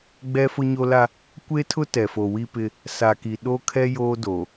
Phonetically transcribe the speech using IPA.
ɡ͡b ɛ˦ f ʊ˦ ɲ o˦ l a˦ | kʷ e˦ tʰ ʊ˦ t ɛ˨ f o˨ w i˦ p ɪ˦ | s a˨ k i˨ ɗ o˦ kʰ ɛ˦ j oː˦ d oː˨

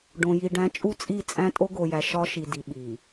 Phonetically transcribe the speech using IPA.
ɖ õ˨ j i˨ ɖ æ̃˨˦ t͡ʃʼ u˦ t͡sʼ i˦˨ t͡sʼ æ̃˦ tʼ o˦ ɡ o˨ j æ˨ ʃ ɒ˦ ʃ i˨ d i˨ ɓ i˨

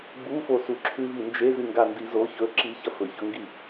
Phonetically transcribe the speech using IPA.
ɡ͡b u f o s u ǁʰ ʉ v i n d͡ʒ e z ɨ ŋ ɡ a n d i z o ç ɵ ǁ i ç ɐ f ɵ ç ɵ ŋ ɡ i

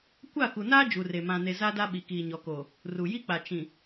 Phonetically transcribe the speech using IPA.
kʷ a˦˨ k u˨ n aː˦ d͡ʒ u˨ r e˨ m ã˨ n e˨ z a˦ d a˦ ɓ i˨ k iː˨ ɲ ɔ˨ k oː˨ | r u˨ j i˦ k͡p a˨ t͡ʃ ĩ˨

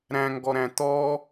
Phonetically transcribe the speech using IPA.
ɾ æ̃ ŋ ɡ ɔ ɾ æ̃ t̪ ɔ

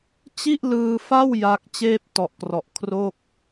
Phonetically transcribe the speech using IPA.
t͡ɕ i˥˩ ʔ l ɯː˧ f a˥˩ w j a˦˥ k̚ t͡ɕ eː˥˩ p̚ t ɔ˨˩ ʔ k r ɔ˨˩ ʔ kʰ r o˥˩ k̚

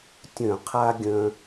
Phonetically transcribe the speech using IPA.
tʲ œ̃˧˩˧ qʰ a˦ ɡʲ œ̃˦

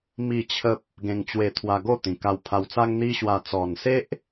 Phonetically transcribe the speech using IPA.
m i˥˧ t͡ɕʰ ə˦ p̚ | ɡ ẽ˧ ŋ t͡ɕ w e˧ t̪ʰ w a˧ ɡ o˥˧ t̪ ĩ˨˩ k a˧ w pʰ a˧ w t͡s a˦ ŋ n̪ i˦ ɕ w a˧ t͡s ɔ˨˩ n s e˦ ʔ

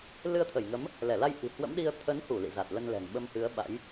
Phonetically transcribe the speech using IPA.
l ɨ˧ ə̯ t̪ʰ ə˧˩ j ŋ ə˨˦ m | l ɛ˧˩ l a˧ j ʔ i̤˨˩ h w ə̰˧˥ m ɗ i˧ ə̯ t̪ʰ ə˨˦ n h u˧˩ l ḭ˧˨ z a˨˩ t̚ l ə˧ n l ɛ̤˨˩ ŋ ɓ ə˧ m h ɨ˨˦ ə̯ ɓ a̰˧˥ j

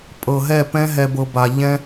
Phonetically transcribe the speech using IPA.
pʼ ɤ˨ ɦ ɛ˦˨ p ɛ̃˦ ɦ ɛ˦ b ɤ˦ b a˦ ʎ ɛ̃˦

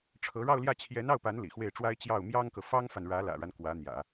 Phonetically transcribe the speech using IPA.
ʈ͡ʂʰ ɤ˧˥ ɻ ɑ˥˧ ʊ̯ l j ä˥˩ t͡ɕʰ j ɛ˧˥ n ɑ˥˩ ʊ̯ p a˧˥ n l ḭ˨˩ x w e˥˩ ɪ̯ ʈ͡ʂ w a˥ ɪ̯ t͡ɕ j ɑ˥˩ ʊ̯ m j ɑ˥ ŋ k ɤ˨ f ɑ˥ ŋ f a˨ n ɻ ä˧˥ l ä̰˨˩ ɻ a˦ n k w ä˧˥ n̪ j ä̰˨˩˦

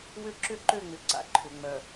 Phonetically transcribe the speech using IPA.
w ʏ˦ ǁ ʏ˦ ǃ ø˦˨ ŋ͡m ʏ˨ ǀ a̰˨ ǃʰ ʏ˨ ŋ͡m œ˨

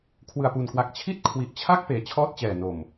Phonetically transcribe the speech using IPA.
kʰ w ɯ˨˩ a̯ p u˨˩ n k w a˨˩ k̚ t͡ɕʰ i˥˩ t̚ kʰ w i˨˩ ʔ t͡ɕʰ a˥˩ k̚ p eː˩˦ t͡ɕʰ ɔː˥˩ t̚ t͡ɕ ɛː˨˩ n o˨˩ m

